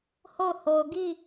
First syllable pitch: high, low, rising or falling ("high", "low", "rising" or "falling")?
falling